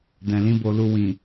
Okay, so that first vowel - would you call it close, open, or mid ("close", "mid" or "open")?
mid